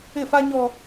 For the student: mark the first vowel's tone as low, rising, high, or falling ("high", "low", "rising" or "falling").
falling